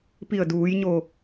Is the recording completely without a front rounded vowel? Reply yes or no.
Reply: yes